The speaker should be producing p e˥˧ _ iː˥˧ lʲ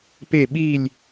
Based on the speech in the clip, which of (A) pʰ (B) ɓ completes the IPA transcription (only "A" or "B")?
B